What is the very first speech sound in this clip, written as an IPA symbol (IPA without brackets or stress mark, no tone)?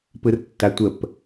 p